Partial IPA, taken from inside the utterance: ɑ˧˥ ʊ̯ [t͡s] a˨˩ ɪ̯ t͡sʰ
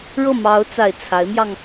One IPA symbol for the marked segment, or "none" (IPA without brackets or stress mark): t͡s